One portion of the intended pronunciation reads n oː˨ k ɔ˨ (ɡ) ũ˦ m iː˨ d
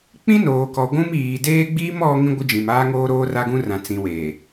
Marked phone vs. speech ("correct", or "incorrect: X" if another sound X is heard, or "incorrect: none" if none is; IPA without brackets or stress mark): incorrect: ɡʷ